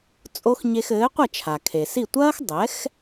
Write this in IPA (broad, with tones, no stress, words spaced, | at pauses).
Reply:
t͡sʼo˥x ɲe˧xɘː˩˥qʷɐ˥˩ t͡ʃʰa˩kʰe˩si˥˩ tʷɐː˥xdˤɛ˩˥x